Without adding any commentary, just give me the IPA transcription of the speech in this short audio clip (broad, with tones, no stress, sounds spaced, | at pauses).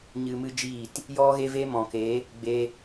ɲ ɨ˧ m ɨ˦ d͡ʒ iː˦˨ t | j ɔ˦ ɣ e˦ v e˦ m ɔ̃˨ k e˨˦ | ɡ͡b e˧